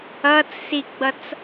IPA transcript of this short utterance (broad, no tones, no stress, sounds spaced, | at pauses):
ʌ t͡s s i ɡ͡b ʌ t͡s